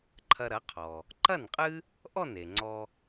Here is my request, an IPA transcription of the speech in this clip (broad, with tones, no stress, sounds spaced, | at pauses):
ǃʰ ɐ˧ ɾ ɐ˩˥ qʰ ɔ˩ | ǃ ɐ˥˩ n qʼ ɨ˥ | ʔ ɔ˥˩ n e˩ ŋ͡ǀ ɔ˧